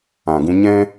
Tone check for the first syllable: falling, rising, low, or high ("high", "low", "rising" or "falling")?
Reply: low